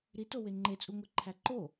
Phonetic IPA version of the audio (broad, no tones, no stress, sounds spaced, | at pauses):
ɾ i t o w e ŋ͡ǃ e t͡sʼ u ŋʷ e ǃʰ æ ǃ o